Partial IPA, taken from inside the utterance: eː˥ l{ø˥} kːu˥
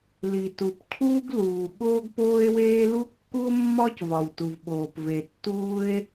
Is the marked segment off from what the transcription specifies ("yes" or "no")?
yes